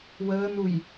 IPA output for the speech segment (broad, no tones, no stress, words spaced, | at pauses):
wəːnuj